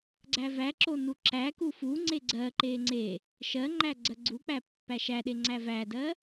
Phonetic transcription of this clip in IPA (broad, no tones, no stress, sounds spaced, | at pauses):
ɡ͡ǀ æ v æ ǁ o n u ǁ æ k u f u ŋ͡ǀ e ɡ͡ǀ ɜ ǃ e ŋ͡ǀ e | ʃ ɜ ŋ͡ǃ æ ɡ͡ǀ ɜ ɡ͡ǀ u k͡p æ pː æ ʃ æ ɗ e ŋ͡ǀ æ v æ d ɜ